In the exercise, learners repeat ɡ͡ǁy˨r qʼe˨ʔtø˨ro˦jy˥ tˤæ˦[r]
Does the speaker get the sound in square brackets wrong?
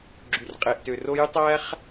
yes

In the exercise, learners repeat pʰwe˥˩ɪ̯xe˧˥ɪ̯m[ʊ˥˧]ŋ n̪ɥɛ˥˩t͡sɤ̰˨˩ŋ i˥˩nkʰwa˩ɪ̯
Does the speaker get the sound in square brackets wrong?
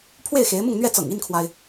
no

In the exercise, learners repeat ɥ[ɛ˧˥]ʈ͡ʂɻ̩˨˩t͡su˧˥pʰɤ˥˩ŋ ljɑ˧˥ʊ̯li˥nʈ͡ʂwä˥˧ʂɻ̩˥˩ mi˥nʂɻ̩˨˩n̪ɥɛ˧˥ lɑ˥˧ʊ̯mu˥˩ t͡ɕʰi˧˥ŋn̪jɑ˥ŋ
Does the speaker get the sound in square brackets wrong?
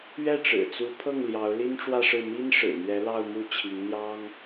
yes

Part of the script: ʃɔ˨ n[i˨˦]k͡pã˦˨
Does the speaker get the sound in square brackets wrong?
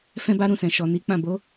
no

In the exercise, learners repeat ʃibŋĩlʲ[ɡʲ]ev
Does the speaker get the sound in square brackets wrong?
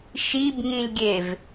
no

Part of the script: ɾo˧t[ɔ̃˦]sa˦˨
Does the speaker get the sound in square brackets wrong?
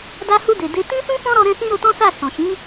no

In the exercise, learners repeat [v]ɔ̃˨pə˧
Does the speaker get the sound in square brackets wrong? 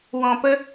yes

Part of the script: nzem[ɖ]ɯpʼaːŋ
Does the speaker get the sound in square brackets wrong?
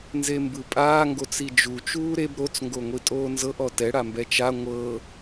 yes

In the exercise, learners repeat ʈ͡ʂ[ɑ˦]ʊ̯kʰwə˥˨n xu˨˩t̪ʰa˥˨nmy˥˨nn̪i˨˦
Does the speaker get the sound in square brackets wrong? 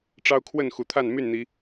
no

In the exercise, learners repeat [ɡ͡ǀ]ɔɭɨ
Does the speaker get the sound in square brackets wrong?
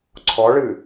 yes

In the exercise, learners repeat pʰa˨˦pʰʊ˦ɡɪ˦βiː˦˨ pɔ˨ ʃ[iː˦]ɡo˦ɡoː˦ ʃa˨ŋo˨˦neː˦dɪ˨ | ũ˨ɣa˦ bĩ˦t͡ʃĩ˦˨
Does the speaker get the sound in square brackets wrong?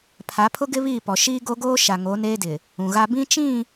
no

